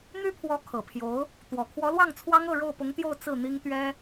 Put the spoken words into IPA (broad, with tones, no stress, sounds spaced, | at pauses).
n̪ y˥ pʰ w ɔ˧˥ kʰ ɤ˨˩ pʰ j o˧˥ ʊ̯ | t̪ w ɔ˨˩ kʰ w ɔ˧˥ l w ɑ˥˩ ŋ t͡sʰ w ɑ˥ ŋ ɤ˥˧ ɻ o˥˩ ʊ̯ p ʊ˧˥ ŋ t̪ j o˥˧ ʊ̯ t͡s ɹ̩˥˩ n̪ i˥ ŋ t̪ ɥ ɛ˥